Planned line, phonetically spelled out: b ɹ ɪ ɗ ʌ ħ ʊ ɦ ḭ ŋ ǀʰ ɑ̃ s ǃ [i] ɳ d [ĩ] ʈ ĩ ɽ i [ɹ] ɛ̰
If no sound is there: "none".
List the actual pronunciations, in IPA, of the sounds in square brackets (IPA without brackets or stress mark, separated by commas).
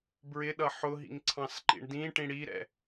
ḭ, ĩ, ɾ